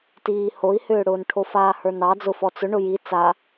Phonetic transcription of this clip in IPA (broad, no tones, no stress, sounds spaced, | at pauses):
t iː h o i̯ h ʏː ɽ ʊː n ʈʰ o f aː h ə˞ n ɑ d͡z ʊ f ɔ t͡s ʊ ɳ ʊ j i t͡s a